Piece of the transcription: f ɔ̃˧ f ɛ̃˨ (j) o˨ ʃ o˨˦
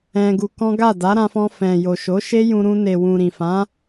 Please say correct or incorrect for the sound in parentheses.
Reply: correct